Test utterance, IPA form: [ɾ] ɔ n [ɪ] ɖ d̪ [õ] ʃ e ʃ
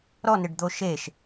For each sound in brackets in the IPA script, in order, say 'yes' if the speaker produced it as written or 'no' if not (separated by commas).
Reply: yes, yes, no